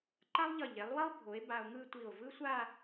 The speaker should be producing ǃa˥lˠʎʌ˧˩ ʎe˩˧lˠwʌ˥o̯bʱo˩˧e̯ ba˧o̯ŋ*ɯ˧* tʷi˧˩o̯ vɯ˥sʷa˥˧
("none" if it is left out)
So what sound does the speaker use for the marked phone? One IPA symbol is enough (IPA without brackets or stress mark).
ɯ˥˧